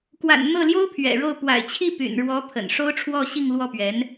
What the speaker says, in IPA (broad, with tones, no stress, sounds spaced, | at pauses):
k w a̰˨˩ n n̪ ɤ˥˩ l j o˥ ʊ̯ pʰ ɥ ɛ̰˨˩ ɻ o˥˩ ʊ̯ p w a̰˨˩ ɪ̯ t͡ɕʰ i˥˩ p y̰˨˩ n ɻ w ɔ˧˥ pʰ ə̰˨˩ n ʂ o˥ ʊ̯ ʈ͡ʂʰ w ɔ˥˧ ɕ i˥˧ ŋ l w ɔ˥˩ p ɥ ɛ˧˥ n